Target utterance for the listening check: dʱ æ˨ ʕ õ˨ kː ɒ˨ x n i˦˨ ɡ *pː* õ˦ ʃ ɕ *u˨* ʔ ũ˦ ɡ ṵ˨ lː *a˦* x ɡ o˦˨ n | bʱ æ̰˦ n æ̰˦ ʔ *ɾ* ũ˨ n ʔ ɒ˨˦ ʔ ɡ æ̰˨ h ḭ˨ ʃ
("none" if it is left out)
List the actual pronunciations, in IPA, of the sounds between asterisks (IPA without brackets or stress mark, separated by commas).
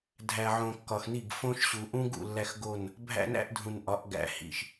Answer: f, u˨, æ˦, dʱ